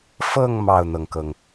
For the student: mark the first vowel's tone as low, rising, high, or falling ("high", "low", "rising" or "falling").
falling